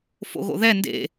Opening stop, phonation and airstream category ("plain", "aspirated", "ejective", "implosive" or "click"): plain